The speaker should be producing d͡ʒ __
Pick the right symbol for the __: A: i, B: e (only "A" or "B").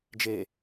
B